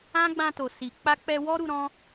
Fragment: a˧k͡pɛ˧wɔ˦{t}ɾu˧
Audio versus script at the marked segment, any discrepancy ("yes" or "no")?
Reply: yes